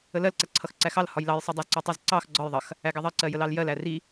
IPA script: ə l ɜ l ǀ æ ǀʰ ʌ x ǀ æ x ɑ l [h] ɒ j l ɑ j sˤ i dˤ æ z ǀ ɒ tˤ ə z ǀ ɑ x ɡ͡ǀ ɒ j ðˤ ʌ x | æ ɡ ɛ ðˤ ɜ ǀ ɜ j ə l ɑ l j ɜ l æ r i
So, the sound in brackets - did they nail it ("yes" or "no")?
yes